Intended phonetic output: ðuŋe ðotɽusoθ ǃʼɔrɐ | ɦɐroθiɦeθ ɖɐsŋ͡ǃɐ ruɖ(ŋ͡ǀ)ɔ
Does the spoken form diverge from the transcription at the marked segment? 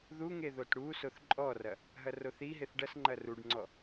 no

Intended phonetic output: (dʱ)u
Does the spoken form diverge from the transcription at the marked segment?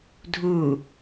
no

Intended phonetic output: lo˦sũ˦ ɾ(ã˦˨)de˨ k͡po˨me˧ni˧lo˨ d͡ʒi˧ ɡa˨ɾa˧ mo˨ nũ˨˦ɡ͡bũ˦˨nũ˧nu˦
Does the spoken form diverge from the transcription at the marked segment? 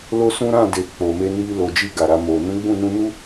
no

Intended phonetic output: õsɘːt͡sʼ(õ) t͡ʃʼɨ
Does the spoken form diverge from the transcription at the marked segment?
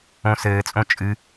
no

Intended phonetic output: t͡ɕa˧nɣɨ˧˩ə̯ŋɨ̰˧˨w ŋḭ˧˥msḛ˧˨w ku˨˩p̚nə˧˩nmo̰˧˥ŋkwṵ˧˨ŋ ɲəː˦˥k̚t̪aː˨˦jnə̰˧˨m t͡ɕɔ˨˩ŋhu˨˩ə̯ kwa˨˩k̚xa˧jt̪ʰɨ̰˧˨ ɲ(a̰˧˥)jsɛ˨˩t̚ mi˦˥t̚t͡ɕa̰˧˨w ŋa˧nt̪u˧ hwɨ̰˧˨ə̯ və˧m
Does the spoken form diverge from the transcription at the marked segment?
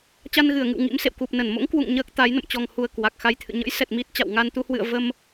yes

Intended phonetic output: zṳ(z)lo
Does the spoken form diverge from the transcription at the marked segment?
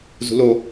yes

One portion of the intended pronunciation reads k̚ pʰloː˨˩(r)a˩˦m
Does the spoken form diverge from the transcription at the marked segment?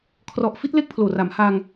no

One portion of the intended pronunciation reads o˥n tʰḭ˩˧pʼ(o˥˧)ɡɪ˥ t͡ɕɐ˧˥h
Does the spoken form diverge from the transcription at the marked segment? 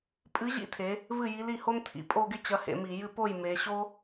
no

